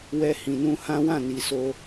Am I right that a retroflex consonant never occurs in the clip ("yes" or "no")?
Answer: yes